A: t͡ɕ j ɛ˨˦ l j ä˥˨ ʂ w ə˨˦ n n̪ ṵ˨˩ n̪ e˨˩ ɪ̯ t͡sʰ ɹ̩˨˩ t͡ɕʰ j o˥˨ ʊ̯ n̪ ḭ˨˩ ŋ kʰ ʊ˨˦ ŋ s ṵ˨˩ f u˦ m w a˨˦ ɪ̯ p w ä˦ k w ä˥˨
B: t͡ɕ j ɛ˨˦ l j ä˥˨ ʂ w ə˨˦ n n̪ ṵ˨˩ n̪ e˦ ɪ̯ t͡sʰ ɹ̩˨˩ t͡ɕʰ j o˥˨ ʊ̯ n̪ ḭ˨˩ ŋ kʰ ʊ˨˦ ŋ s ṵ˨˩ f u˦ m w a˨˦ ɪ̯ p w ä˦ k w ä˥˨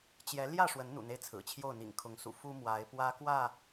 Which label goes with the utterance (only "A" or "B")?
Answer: B